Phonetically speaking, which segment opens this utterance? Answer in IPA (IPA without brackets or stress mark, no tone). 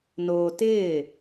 n